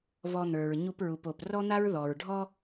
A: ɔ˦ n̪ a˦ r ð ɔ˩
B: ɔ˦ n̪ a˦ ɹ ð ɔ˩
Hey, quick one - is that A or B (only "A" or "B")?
B